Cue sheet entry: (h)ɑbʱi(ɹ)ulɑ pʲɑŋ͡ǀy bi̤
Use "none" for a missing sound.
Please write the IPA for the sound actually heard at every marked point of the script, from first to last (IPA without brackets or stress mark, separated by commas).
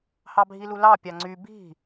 h, l